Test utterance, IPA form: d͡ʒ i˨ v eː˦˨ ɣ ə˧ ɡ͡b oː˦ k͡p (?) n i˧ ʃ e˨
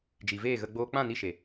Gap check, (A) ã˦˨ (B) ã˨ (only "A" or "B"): A